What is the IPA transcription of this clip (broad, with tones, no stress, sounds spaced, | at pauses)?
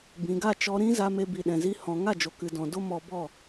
b ĩ˨ ɡ a˦˨ t͡ʃ ɔ˧ ɾ ĩ˦ z a˧ m e˧ b i˨ ɗ ɛ̃˨ z i˧ h ɔ̃˧ ŋ a˦˨ d͡ʒ o˨ k ɨ˨ d ɔ̃˨ d o˦ m ɔ˧ b ɔ˦˨